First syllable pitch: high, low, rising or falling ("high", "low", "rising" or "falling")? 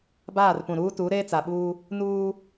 falling